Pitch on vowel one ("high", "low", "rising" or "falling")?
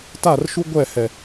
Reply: falling